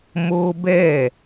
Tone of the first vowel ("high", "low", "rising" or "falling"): high